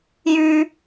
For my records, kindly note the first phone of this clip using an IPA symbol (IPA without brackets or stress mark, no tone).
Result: j